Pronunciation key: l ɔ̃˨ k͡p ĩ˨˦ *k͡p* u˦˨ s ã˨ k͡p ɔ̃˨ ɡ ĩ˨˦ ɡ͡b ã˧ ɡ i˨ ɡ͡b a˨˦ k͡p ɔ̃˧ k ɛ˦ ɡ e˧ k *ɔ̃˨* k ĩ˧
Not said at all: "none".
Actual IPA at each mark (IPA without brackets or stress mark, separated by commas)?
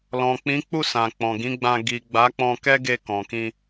k͡p, ɔ̃˨